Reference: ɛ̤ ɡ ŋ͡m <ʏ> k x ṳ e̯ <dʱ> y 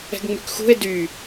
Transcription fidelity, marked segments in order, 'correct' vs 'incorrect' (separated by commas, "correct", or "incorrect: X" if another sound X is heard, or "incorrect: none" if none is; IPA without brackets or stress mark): incorrect: y, incorrect: d